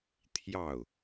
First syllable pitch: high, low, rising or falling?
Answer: falling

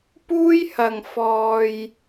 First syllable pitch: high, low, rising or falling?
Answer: high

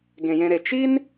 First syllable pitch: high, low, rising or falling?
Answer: low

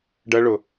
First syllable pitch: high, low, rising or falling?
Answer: high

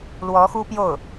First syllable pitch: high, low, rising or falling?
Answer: rising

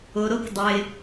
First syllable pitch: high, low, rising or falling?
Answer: low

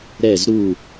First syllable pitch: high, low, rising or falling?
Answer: falling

